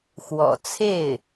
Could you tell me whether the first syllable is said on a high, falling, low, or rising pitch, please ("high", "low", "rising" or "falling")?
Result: low